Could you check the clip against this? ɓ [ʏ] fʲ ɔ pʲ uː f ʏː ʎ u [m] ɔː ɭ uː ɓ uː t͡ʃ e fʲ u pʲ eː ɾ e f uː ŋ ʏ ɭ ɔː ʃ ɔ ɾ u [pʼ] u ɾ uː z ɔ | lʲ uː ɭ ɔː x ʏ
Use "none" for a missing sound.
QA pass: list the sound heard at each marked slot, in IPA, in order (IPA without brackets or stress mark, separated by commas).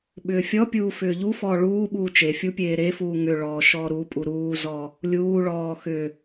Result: ʏː, f, pʼ